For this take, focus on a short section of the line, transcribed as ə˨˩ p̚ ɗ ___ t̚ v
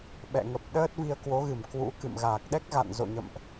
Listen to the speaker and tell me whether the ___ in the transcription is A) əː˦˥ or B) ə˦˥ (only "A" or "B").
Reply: A